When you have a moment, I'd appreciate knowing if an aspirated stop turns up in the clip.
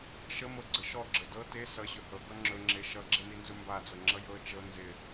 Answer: no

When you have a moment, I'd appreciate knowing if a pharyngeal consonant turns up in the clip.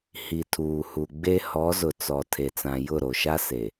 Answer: no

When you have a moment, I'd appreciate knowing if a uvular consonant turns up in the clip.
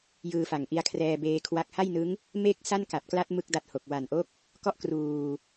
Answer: no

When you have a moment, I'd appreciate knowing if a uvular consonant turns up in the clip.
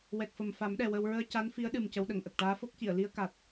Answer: no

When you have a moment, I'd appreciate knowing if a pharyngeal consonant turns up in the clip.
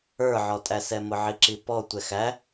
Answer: yes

